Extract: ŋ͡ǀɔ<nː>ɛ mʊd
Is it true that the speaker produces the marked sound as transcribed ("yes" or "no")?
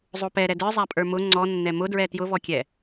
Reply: yes